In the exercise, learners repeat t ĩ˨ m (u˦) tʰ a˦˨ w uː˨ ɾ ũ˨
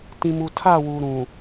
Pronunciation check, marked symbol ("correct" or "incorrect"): incorrect